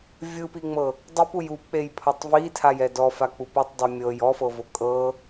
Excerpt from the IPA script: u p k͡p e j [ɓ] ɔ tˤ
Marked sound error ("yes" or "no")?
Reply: yes